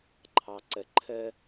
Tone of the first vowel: low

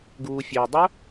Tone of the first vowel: low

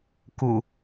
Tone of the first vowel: low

